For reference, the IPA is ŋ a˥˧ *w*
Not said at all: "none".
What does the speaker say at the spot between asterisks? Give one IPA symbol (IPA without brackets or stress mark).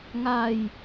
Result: j